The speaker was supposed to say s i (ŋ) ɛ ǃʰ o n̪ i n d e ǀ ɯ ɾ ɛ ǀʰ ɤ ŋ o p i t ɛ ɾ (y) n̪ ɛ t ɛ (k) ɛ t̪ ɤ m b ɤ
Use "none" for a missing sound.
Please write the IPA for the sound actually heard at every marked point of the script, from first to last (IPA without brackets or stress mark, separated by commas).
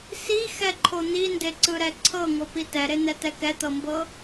x, e, k